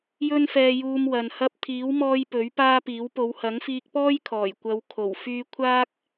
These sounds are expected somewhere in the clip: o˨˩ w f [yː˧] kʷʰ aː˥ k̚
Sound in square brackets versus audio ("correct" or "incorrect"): correct